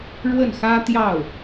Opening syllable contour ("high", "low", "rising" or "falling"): falling